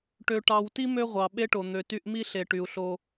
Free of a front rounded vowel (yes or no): no